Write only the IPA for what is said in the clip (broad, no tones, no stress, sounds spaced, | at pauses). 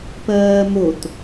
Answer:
p ɜː m o t